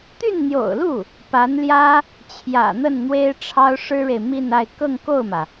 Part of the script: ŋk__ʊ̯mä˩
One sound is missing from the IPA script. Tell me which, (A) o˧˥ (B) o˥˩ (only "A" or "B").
B